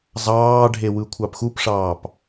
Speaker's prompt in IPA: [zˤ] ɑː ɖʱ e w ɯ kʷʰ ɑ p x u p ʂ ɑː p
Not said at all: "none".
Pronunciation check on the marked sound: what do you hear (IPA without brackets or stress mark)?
zˤ